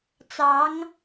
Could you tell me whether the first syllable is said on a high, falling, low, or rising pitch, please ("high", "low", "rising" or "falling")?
rising